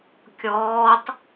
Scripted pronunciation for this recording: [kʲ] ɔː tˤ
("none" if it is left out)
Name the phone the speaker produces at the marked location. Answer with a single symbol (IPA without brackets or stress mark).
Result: kʲ